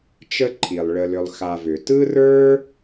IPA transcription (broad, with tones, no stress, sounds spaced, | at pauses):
t͡ʃ ə˥ ǃʰ i˩ lˠ ɭ ə˨ l ʏ˨ lˠ x a˨ v ʏ˩ t ɯ˥ r ə˞˥